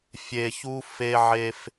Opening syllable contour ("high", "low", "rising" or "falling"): low